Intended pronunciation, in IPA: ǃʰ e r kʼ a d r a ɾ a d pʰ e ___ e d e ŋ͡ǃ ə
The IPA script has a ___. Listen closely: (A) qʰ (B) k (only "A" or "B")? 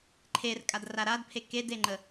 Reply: B